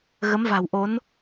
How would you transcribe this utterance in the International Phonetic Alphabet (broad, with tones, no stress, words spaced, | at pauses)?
ɣə˨˦mva̤˨˩wʔo˨˦n